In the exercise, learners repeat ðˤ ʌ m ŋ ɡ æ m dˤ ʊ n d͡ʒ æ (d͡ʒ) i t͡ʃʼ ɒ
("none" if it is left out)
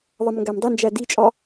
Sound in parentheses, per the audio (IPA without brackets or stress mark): d